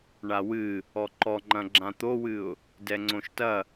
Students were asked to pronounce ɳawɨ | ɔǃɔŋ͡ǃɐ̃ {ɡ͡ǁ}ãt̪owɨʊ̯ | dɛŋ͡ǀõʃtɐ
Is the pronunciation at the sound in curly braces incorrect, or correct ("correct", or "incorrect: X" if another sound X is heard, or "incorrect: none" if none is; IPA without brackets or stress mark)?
correct